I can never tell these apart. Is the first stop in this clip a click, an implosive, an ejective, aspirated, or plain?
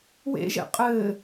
ejective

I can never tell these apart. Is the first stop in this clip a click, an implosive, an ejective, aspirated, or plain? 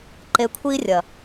click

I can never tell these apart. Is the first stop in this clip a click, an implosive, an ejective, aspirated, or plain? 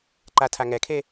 click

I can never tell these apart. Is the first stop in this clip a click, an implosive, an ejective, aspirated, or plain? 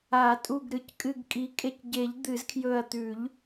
ejective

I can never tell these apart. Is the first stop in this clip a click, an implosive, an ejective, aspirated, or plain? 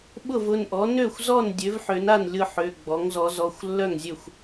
implosive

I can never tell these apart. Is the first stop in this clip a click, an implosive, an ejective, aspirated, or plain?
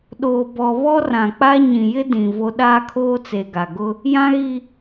implosive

